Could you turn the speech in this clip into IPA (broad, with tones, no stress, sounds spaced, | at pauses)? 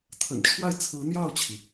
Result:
t̪ʰ ə̰˨˩ n ʈ͡ʂʰ w a˥˩ ɪ̯ t͡sʰ ɹ̩˧˥ n̪ j ɑ˥˩ ʊ̯ t͡ɕʰ i˩